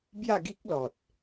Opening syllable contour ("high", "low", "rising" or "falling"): falling